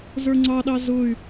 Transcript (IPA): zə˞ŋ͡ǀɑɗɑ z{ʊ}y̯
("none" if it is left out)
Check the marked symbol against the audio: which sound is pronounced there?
ʊ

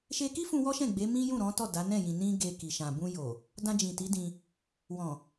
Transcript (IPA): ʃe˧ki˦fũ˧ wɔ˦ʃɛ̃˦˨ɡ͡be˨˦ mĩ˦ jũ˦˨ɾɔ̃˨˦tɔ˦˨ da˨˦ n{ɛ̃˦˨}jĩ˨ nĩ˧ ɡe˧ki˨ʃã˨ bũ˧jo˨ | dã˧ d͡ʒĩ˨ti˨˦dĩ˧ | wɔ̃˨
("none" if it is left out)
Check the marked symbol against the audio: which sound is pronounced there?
ɛ̃˦˨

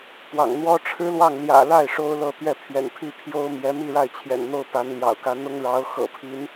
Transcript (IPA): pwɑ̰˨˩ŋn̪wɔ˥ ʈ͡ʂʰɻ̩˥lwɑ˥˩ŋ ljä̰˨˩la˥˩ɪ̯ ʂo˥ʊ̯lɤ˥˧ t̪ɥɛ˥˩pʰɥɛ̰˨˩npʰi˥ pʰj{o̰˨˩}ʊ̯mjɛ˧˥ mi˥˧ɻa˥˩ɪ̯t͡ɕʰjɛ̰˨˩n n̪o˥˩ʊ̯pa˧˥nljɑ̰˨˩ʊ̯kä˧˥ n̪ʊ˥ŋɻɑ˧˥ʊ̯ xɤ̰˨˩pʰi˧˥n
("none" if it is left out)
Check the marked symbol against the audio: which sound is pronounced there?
o˥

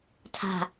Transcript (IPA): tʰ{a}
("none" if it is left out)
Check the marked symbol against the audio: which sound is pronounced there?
a̤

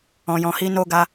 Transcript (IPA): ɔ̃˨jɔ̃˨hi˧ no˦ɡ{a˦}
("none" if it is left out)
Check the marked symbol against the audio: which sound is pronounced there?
a˦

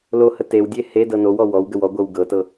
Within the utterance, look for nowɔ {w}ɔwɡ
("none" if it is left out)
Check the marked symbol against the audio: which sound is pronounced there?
w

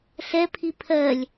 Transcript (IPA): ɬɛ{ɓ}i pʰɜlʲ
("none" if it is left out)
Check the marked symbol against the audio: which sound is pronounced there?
pʰ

